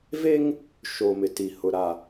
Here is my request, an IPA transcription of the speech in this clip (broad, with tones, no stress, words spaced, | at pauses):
ve˦ŋ | ʃo˨mɪ˨ti˨hʊ˨ ɾa˨